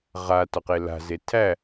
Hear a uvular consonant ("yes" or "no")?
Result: yes